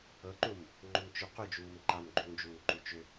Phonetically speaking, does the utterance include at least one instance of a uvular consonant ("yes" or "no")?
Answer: yes